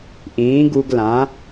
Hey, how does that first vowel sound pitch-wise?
rising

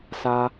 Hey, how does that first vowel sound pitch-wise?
high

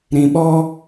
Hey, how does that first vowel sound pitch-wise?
low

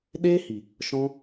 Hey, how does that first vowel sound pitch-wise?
high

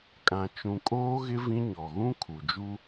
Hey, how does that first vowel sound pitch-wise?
low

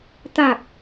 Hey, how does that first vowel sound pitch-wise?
low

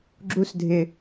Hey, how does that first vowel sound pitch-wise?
high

